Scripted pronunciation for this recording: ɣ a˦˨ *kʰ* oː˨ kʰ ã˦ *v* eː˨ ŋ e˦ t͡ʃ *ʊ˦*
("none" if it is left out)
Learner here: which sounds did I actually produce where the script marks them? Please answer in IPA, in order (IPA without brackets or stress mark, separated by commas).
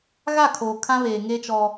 kʰ, β, ɔ˦